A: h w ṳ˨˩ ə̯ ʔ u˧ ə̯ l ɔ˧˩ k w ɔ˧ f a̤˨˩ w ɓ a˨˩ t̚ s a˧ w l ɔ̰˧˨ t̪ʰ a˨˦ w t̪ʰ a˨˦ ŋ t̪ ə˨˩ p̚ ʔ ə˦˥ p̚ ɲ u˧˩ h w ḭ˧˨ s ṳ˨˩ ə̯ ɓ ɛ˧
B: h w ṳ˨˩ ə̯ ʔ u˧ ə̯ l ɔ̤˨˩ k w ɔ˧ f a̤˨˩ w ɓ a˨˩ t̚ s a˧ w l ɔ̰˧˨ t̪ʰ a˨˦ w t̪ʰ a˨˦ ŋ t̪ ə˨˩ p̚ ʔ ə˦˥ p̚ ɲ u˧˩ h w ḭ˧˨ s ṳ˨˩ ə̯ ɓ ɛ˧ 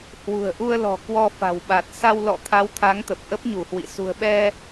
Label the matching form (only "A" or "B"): B